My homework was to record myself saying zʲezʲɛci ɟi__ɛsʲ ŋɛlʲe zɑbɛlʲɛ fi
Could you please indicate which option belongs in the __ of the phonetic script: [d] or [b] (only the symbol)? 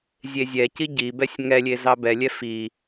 b